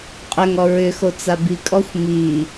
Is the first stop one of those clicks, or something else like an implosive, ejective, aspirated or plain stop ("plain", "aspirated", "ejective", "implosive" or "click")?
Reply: ejective